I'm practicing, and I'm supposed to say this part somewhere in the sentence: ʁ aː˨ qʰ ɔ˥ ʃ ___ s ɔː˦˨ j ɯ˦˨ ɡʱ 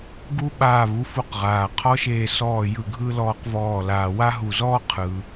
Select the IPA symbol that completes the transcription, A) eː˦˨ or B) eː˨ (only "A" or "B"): A